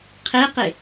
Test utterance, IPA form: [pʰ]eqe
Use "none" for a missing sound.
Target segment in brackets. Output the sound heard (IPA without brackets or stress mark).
qʰ